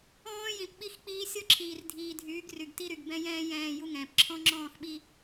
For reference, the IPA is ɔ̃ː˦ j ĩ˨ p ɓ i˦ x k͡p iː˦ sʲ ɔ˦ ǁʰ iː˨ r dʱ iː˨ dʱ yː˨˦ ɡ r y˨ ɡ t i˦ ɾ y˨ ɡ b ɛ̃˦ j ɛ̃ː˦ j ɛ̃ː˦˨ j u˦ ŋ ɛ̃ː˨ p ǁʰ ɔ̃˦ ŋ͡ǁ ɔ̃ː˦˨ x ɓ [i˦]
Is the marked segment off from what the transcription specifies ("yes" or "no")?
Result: no